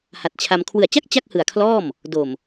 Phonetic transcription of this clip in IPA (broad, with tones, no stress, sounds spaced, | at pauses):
h a˨˩ t̚ t͡ɕʰ a˧ m kʰ w ɯ˨˩ a̯ t͡ɕ a˥˩ k̚ t͡ɕ a˥˩ k̚ h ɯ˨˩ a̯ kʰ l ɔː˥˩ m | d o˨˩ m